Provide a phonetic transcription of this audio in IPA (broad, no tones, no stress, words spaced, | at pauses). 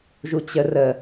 ʒut͡ɕə rə